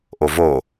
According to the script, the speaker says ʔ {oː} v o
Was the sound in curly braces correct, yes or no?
no